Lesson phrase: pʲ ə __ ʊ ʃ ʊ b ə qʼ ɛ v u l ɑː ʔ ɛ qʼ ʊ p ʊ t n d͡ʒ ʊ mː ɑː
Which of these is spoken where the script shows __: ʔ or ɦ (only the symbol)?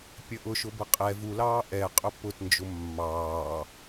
ʔ